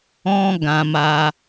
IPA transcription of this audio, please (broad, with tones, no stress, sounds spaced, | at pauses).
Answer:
ɔ̃˦ ɡ ã˧ m a˧